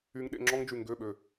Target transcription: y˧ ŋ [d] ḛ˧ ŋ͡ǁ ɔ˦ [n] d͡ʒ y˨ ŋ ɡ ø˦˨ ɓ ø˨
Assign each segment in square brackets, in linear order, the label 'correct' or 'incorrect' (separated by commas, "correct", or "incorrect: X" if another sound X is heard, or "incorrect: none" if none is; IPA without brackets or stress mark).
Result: incorrect: ɗ, incorrect: ŋ